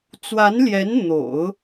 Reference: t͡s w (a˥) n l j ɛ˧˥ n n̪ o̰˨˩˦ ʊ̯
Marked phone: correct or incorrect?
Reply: incorrect